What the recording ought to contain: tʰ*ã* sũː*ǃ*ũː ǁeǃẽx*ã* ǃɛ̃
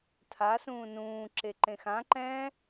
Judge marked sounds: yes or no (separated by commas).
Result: no, no, yes